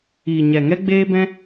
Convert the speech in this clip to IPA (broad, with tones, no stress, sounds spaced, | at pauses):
iː˨ ɲ ɛ˨ ŋ ɛ˦ ɡ͡b eː˦ b ɛ̃˦